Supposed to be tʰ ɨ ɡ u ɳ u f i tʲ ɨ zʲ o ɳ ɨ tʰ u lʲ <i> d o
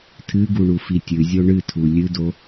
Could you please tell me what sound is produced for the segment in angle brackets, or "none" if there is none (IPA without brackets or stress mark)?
ɨ